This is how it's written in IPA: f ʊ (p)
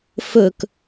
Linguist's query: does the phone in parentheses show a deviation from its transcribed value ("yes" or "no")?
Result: yes